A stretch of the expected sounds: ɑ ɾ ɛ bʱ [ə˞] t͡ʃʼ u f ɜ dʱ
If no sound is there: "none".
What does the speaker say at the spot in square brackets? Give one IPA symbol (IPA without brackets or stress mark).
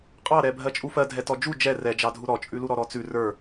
ɜ